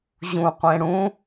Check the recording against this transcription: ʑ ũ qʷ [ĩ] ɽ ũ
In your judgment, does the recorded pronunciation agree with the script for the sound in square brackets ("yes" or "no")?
no